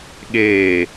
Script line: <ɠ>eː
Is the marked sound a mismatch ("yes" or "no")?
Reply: no